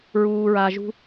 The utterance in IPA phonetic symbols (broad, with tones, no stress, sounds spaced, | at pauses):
ɹ uː˨ ɹ a˨ ʒ ṳ˧